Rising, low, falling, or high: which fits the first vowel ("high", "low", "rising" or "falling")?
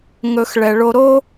low